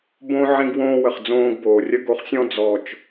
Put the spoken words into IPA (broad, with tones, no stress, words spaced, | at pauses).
bõ˦ ʕĩ˦ɡwõː˦wə˨χ d͡zõː˧ɡboː˨rʲə˦ ɡo˧χsʲɔ̃˦ d͡zɔ˨t͡ʃ